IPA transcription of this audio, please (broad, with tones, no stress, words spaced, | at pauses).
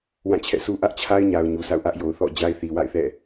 wã˦˨t͡ɕʰɛ̰˦˨su˦ ʔä˦ʔt͡ɕʰa˦ɪ̯ɲa˨ʊ̯ ɲu˨sʰa̰˦˨ʊ̯ ʔä˦ʔjo˨ʊ̯θɔ̰˦˨d͡ʑa˦ɪ̯ θi˨wa̰˦˨ɪ̯θɛ̰˦˨